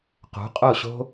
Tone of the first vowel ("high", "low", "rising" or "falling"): rising